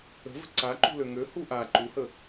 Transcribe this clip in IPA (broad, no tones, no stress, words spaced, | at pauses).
ə̤və̤ ǀa ǃṳløŋø huʔa ǃuhə